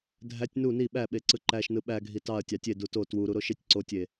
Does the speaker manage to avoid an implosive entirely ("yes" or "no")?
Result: no